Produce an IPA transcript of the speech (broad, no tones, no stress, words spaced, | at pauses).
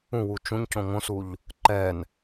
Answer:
ũwu t͡ʃũɲcõ ŋõsuʎ | ǃɛn